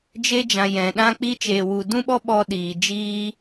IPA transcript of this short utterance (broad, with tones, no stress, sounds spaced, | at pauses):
d͡ʒ e˧ d͡ʒ ã˨ j ɛ̃˨ ɗ ã˧ k͡p i˧ t͡ʃ eː˨ w u˨ d ũ˧ ɓ ɔ˧ ɓ ɔ˧ ɗ iː˨ d͡ʒ iː˧